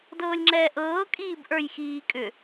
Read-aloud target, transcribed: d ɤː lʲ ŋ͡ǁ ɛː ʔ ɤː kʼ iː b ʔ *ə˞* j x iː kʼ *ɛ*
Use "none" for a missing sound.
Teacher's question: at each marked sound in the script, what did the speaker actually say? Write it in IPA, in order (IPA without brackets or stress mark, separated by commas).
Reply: ə˞, ʏ